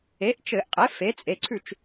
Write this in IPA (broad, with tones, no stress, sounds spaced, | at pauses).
e˩˥ ʔ t͡ʃ ɘ˧˩˧ ʔ qʼ e˩˥ f e˩˥ t͡sʼ e˩˧˩ ǀʰ ʉ˥˩ t͡ʃ